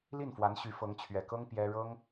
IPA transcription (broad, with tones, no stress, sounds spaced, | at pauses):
l i˥˩ n f w a˧˥ n ɕ y˧˥ f ɤ˧˥ ŋ t͡ɕʰ ɥ ɛ˨˩ k ɤ˥ ŋ p j ɛ˥ ɻ ɤ˥ ŋ